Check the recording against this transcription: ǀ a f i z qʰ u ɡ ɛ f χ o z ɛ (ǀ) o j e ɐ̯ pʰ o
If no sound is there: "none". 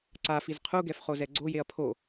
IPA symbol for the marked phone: ɡ͡ǀ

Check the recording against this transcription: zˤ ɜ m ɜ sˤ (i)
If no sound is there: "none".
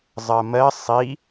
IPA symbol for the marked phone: i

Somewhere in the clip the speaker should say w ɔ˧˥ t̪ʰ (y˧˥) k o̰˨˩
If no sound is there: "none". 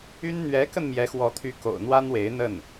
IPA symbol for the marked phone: y˧˥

